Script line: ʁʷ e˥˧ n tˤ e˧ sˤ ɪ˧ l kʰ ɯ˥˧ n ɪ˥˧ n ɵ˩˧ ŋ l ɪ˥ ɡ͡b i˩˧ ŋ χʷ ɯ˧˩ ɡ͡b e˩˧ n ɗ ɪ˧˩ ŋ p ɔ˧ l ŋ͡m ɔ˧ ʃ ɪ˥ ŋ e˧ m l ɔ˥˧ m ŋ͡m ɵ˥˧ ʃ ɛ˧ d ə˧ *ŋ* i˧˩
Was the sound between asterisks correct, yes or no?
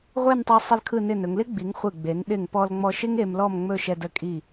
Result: no